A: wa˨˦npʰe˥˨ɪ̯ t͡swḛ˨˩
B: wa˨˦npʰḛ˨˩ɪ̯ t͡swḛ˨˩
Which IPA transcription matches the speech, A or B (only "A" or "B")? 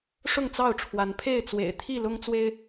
A